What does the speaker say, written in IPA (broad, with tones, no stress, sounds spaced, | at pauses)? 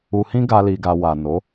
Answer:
u˨ h ĩ˧ ɡ a˦ l i˧ ɡ a˧ w a˨ n o˨˦